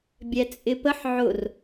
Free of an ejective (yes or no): no